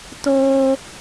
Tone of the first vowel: high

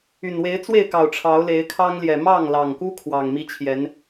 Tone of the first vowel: low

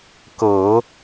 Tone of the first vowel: low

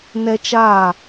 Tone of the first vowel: high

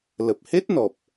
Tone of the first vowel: low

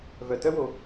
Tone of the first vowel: low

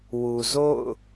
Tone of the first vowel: low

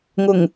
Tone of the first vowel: low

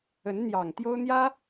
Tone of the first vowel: rising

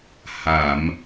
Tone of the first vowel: low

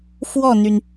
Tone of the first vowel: falling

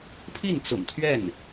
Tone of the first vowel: falling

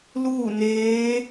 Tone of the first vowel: falling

